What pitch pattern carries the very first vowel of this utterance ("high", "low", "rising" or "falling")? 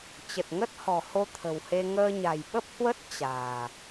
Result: low